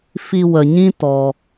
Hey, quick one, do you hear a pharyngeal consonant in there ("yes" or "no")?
no